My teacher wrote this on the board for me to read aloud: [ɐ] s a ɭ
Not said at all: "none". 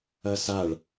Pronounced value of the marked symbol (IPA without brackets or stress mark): ɐ